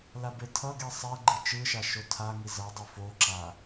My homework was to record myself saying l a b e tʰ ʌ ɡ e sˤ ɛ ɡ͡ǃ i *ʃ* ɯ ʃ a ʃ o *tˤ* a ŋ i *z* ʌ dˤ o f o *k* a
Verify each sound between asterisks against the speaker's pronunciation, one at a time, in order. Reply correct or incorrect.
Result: incorrect, incorrect, correct, incorrect

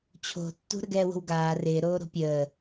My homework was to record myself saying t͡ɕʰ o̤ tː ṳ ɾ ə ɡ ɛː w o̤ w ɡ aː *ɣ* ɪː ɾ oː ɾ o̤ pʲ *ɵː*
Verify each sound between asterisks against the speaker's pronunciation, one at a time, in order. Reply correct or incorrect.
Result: incorrect, incorrect

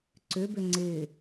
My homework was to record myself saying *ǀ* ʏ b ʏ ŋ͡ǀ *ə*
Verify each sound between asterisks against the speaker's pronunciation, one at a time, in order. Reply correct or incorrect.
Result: correct, incorrect

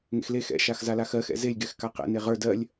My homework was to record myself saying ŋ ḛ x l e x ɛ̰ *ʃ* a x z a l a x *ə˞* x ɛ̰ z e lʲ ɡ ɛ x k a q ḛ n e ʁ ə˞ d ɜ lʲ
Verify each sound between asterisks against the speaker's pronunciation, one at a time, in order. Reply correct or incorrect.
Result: correct, incorrect

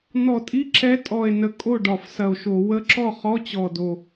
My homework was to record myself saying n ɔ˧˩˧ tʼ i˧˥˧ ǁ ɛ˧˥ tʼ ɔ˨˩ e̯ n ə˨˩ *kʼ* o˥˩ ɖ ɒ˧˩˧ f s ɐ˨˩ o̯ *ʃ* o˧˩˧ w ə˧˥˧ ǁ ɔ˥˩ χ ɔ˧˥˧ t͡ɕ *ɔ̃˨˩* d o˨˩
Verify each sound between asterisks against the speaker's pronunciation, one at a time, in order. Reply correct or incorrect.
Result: correct, correct, incorrect

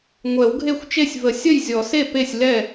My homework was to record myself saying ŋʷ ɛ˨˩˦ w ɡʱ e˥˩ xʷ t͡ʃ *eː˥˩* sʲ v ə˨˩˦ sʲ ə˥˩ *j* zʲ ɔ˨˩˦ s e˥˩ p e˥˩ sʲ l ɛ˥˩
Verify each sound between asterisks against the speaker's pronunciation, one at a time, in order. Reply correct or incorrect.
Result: incorrect, correct

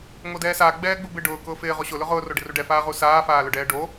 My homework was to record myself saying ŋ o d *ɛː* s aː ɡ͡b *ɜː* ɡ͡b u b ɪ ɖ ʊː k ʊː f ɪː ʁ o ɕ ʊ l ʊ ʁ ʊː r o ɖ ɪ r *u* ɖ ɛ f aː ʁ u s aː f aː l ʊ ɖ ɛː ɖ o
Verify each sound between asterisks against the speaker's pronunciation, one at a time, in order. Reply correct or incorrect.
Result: correct, incorrect, correct

